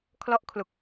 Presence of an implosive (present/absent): absent